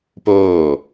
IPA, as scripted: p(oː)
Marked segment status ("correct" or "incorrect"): correct